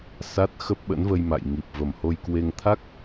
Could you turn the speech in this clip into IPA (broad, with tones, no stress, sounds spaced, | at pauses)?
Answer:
s a˦˥ t̚ x ə˦˥ p̚ ɓ ə̰˧˥ n v ə˧ j m a̰˧˨ j ŋ i˨˩ p̚ v ə˨˩ m h o˧ j k w e˧ ŋ t̪ʰ a˦˥ k̚